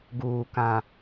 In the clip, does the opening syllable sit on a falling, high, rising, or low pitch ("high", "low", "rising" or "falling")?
low